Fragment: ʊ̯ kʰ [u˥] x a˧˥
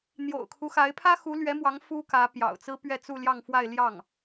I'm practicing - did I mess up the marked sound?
yes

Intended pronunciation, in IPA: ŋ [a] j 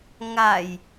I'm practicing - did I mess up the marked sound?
no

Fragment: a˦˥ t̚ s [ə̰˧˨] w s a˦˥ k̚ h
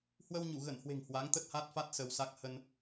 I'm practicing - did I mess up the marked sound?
yes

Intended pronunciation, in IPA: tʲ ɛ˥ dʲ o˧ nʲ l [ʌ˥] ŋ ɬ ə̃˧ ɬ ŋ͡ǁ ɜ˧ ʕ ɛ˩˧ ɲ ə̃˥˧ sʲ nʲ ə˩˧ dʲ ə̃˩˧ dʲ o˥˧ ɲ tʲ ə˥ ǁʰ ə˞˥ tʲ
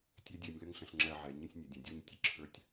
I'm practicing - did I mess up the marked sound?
yes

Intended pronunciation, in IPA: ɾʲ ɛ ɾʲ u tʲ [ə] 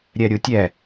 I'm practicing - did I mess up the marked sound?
yes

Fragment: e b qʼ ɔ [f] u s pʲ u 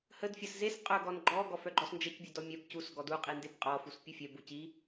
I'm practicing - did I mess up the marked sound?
no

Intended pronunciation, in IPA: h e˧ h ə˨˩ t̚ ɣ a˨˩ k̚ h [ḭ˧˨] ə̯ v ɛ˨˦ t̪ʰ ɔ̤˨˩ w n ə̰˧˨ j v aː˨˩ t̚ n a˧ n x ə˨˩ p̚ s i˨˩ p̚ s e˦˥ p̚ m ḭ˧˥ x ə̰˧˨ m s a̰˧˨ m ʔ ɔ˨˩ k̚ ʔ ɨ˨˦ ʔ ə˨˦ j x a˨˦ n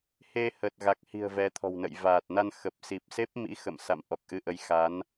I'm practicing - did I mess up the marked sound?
yes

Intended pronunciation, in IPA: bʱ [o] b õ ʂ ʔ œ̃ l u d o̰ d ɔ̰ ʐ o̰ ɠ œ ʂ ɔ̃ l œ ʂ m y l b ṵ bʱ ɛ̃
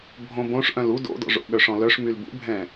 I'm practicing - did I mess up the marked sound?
yes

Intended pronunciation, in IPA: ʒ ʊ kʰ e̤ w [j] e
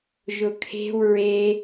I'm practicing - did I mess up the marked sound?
yes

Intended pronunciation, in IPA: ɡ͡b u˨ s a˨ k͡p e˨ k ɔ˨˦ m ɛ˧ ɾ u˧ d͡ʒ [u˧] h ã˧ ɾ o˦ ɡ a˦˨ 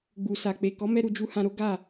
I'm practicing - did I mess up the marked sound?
no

